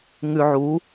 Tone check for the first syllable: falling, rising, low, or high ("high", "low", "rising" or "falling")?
low